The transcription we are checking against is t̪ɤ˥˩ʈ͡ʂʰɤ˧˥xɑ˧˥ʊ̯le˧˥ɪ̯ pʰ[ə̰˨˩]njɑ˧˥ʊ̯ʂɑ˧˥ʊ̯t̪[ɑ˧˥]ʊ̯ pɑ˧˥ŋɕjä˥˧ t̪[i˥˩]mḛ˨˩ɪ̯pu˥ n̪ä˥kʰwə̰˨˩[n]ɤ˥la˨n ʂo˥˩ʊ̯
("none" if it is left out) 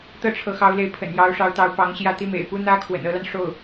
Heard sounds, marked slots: ə̰˨˩, ɑ˧˥, i˥˩, n

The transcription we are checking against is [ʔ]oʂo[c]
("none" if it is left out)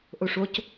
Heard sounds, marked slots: ʔ, c

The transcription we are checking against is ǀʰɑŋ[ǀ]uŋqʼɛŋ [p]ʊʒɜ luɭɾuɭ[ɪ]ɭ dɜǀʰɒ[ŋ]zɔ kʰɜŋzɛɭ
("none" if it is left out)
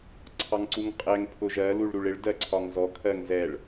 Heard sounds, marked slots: ǀ, pʰ, ɪ, ŋ

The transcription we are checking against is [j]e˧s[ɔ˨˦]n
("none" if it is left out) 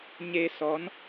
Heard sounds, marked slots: ɲ, ɔ˨˦

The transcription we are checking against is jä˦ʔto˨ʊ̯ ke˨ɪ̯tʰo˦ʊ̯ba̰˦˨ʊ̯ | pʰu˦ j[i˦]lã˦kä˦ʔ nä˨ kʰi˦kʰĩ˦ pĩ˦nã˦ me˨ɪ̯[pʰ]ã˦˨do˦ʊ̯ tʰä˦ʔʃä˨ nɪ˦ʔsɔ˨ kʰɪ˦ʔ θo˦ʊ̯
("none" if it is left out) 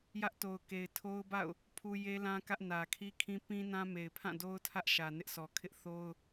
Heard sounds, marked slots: e˦, pʰ

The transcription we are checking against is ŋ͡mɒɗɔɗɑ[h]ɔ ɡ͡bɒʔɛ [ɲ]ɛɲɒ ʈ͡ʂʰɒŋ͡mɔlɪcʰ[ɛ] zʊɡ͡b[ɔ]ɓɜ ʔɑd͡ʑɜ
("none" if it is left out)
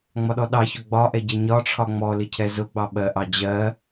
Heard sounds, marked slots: ç, ɟ, ɛ, ɑ

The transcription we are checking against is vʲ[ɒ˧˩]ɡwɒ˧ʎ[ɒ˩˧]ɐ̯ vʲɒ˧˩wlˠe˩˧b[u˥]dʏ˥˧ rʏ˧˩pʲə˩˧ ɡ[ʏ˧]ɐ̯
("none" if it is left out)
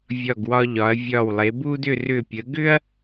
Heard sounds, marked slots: ɒ˧˩, ɒ˩˧, u˥, ʏ˥

